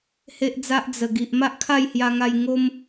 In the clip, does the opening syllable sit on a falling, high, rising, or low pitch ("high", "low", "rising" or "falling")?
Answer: high